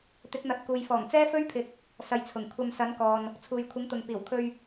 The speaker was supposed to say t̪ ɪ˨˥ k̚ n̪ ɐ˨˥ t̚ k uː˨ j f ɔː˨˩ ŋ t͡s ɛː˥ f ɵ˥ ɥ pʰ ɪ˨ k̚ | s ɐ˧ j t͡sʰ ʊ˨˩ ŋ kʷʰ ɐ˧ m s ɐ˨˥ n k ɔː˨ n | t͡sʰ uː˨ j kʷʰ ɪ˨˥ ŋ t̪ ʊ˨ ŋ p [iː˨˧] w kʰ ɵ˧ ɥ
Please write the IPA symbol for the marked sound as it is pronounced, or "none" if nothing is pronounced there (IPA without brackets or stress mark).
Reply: iː˨˩